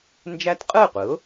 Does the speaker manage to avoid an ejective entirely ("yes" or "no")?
no